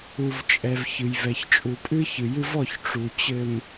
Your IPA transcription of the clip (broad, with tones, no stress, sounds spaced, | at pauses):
u˨ v t͡ʃʼ ɛ˨ v ç ɨ˨ j v ɛ˨ ç t͡ʃʼ u˨ pʼ ɨ˦ ç ɨ˨ j ɨ˦ v ɔ˦˨ ç ʈ͡ʂ u˨ t͡ɕ ɘ˨ m